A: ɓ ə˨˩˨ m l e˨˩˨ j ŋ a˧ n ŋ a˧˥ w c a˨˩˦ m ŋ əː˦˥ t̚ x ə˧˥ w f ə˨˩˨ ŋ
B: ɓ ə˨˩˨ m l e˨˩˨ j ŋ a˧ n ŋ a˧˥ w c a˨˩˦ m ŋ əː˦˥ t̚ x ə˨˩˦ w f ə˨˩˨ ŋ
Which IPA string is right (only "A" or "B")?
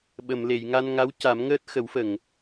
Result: B